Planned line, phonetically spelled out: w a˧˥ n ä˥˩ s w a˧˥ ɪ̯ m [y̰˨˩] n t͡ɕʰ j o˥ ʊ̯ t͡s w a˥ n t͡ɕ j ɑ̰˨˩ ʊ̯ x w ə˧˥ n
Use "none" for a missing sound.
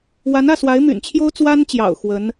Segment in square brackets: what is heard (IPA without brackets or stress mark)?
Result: y̰˨˩